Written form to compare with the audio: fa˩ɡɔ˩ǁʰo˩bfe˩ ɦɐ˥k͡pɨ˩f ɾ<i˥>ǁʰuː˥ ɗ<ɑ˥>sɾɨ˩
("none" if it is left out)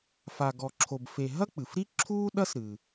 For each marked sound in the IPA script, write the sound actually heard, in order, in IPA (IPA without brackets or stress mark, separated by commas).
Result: i˥, ɐ˥